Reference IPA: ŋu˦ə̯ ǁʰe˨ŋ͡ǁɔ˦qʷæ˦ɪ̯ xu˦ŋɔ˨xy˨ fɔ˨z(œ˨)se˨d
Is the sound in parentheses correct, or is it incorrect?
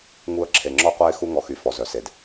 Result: correct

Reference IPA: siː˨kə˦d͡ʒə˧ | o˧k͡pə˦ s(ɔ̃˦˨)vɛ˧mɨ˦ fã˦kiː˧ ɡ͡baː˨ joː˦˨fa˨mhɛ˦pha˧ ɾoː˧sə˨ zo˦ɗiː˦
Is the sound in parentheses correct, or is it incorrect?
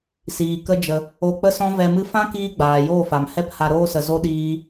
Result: incorrect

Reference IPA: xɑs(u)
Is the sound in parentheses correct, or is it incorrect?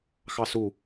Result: correct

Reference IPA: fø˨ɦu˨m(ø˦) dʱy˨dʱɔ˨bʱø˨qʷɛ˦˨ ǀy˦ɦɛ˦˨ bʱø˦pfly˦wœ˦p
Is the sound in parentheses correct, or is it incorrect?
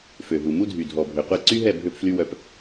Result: incorrect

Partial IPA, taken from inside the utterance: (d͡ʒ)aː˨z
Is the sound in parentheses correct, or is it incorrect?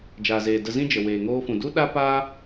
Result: correct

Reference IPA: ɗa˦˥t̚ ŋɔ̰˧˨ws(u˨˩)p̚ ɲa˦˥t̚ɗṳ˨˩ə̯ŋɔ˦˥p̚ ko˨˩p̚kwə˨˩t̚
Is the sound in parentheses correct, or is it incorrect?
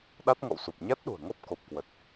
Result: correct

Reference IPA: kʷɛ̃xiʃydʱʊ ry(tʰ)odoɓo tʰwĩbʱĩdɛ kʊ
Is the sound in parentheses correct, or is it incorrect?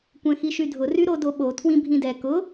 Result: incorrect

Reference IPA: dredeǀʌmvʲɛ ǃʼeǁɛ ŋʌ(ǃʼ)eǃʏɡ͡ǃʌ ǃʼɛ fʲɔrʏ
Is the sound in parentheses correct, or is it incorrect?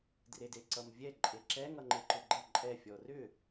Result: incorrect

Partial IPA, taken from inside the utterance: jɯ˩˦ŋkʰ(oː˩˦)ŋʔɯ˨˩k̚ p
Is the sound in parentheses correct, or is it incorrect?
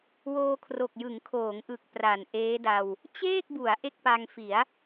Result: correct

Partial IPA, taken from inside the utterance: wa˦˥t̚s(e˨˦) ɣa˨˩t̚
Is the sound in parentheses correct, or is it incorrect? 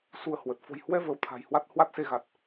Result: incorrect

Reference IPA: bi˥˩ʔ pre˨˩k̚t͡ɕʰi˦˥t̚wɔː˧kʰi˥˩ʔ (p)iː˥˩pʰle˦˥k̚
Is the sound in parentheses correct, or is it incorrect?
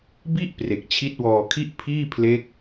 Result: incorrect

